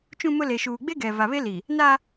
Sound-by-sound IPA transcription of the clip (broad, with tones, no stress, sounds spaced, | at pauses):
t͡ʃ ũ˦ m ʊ˦ l e˨ ʃ uː˨ ɡ͡b e˦ ɡ ɛ˨ v a˨ β e˦ l i˨ | n a˦